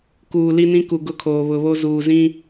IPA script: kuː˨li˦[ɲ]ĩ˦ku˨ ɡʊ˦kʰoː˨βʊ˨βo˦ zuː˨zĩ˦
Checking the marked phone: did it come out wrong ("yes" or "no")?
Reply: yes